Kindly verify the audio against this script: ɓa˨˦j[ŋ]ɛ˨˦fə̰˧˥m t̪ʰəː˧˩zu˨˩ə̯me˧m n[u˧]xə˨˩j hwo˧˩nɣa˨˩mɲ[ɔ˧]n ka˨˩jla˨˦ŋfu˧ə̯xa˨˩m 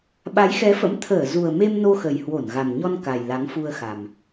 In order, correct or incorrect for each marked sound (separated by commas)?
incorrect, incorrect, correct